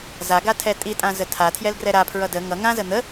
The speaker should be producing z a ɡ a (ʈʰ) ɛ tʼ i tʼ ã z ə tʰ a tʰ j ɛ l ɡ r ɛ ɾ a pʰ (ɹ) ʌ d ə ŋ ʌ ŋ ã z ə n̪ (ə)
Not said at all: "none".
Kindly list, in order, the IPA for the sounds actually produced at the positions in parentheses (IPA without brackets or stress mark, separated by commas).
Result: tʰ, ɹ, ə